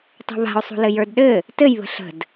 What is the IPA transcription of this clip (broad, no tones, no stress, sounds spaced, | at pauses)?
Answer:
tˤ ṳ β a̤ ʊ̯ sˤ ṳ l ɘ j ə˞ d ɗ ɘ | t ɘ j β ə̤ ɬ ə̤ d